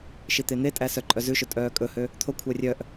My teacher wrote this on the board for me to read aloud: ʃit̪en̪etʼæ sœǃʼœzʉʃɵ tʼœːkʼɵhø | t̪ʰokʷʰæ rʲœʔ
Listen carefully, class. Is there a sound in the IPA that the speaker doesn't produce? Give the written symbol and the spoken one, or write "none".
none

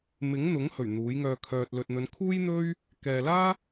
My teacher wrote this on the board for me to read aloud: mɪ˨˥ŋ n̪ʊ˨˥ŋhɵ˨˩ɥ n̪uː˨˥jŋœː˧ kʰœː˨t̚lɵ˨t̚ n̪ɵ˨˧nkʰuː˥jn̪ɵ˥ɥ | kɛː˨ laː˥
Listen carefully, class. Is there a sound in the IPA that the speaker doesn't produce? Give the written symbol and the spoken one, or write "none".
none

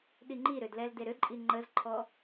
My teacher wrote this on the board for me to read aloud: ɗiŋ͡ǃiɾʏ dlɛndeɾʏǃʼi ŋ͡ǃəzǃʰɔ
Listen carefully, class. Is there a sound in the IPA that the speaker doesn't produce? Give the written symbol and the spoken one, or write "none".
n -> l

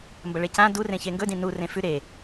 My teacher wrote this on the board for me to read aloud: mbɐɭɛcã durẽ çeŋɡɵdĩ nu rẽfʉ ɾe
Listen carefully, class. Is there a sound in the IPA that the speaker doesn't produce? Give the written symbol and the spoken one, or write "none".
ɛ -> e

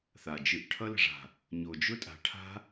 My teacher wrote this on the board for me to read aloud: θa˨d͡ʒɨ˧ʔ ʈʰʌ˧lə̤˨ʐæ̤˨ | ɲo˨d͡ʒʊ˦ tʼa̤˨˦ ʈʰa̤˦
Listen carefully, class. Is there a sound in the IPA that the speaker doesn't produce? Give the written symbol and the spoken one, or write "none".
æ̤˨ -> a̤˨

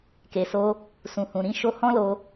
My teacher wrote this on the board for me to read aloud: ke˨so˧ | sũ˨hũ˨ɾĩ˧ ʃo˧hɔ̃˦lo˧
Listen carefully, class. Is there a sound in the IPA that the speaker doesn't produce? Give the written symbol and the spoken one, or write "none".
none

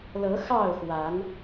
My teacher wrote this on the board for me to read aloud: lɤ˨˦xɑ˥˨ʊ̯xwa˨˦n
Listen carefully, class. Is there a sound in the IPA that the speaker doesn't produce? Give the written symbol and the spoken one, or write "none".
none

